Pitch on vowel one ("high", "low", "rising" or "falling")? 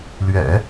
low